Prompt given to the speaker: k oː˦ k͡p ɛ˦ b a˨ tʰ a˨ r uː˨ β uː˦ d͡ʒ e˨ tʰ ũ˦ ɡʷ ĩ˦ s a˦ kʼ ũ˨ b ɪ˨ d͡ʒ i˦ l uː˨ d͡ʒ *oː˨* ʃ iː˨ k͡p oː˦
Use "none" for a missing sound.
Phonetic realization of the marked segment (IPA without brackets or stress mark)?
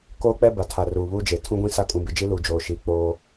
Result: oː˨